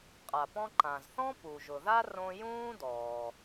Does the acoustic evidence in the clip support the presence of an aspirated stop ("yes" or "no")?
no